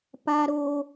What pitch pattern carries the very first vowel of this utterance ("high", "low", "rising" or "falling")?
high